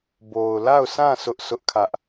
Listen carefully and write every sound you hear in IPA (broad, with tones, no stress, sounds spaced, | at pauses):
b o˨ ʊ̯ l a˦˨ ʊ̯ s ã˦˨ s ʊ˦ ʔ sʰ ʊ˦ ʔ kʰ ä˦ ʔ